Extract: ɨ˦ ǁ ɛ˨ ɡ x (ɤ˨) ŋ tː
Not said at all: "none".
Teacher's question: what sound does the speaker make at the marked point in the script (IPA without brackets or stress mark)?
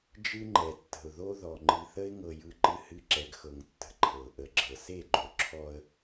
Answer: ɤ˨